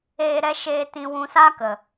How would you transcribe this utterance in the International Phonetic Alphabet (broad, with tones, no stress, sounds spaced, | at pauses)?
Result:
eː˧ ɾ ɛ˦ ʃ eː˧ t ĩ˧ w ũ˧ s a˦ k ə˨